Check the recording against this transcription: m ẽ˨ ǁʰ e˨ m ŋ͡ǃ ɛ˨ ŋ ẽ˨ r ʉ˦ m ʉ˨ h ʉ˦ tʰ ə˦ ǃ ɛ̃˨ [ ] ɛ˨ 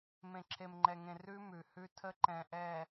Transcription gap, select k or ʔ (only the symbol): ʔ